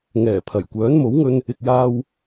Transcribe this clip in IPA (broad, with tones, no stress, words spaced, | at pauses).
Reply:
ŋɛː˨˩ pʰɐ˨˩j kʷœː˨˥nmo˨˥wŋɵ˧n | ɪ˨k̚jaː˧w